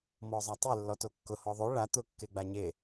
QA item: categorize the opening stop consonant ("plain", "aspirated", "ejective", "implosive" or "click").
plain